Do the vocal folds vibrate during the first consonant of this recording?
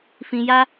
no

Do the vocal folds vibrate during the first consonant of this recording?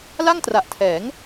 yes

